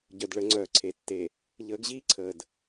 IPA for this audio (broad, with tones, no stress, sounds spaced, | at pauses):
ɟ œ˨ d ɭ ə˨˦ ŋ͡ǀ œː˨ ǀʰ e˨ tː e˨ | ʎ əː˨˦ ɡ ʑ iː˦ ǀʰ əː˨ d